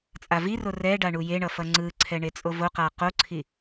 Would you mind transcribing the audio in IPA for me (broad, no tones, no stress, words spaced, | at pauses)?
t͡sʼaviro rɛɖa ɳujeɳʌ fʌŋ͡ǀɯǀʰɛ ɳet͡sʼovoqa qoǀʰi